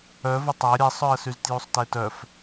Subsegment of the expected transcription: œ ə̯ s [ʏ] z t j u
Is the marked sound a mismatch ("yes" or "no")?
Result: yes